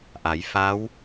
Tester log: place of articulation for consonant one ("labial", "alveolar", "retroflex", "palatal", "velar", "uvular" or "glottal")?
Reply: glottal